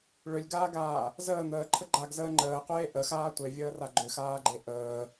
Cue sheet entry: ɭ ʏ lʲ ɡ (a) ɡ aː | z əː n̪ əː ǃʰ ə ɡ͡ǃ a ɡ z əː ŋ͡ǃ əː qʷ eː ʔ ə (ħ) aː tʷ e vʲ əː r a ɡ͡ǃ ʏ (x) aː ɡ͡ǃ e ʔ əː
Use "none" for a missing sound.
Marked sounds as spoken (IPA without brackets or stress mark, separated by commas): aː, x, x